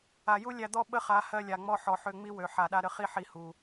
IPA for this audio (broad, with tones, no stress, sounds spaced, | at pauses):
a˨ j u˦ lʲ æ˧ d̪ ɔ˦ ɓ ə˦ χ a˨˦ h ɜ˧ lʲ a˨ ŋ͡m ɔ˧ ħ ɔ˨ ħ ø˧ ŋ͡m i˦ w ø˨ ħ a˨ ɗ a˧ ɾ ə˧ χ i˦ ħ i˧ h u˨